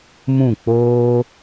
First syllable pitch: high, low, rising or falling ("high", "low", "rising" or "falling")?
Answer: falling